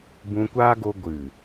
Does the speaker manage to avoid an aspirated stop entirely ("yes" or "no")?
yes